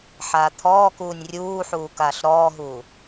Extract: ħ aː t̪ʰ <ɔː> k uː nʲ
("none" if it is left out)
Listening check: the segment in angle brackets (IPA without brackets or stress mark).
ɔː